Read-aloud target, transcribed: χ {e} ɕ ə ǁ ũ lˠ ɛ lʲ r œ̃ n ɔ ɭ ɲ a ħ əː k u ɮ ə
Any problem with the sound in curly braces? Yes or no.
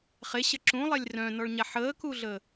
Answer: no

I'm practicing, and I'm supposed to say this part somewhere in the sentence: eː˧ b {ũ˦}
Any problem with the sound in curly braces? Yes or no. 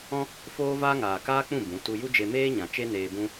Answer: no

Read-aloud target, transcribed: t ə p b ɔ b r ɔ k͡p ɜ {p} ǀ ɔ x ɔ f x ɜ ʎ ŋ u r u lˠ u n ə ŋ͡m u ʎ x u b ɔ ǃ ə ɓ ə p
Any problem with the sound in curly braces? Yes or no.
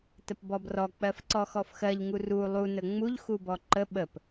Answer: yes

